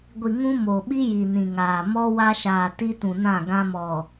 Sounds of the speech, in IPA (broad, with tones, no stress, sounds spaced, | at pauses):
ɡʷ i˨ ŋ ũ˦ m o˨ ɓ i˦ j i˨ n ĩ˨ ŋ aː˨ m ɔ˦ w a˦ ʃ aː˨ t i˦ t ũ˨ n ã˦˨ ɡ ã˦ m ɔ˨